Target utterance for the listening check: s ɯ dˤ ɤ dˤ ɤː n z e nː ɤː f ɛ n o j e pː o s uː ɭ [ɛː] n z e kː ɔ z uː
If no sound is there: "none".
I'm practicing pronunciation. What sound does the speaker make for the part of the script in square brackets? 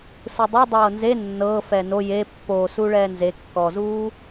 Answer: ɛː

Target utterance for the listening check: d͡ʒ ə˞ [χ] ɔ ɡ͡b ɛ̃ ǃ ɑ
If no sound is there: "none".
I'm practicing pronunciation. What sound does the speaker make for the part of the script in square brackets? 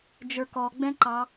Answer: k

